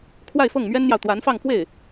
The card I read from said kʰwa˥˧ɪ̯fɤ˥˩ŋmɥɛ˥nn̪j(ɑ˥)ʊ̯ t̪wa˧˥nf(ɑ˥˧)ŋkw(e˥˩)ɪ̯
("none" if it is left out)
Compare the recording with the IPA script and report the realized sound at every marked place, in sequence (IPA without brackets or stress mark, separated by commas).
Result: ɑ˨, ɑ˥˧, e˥˩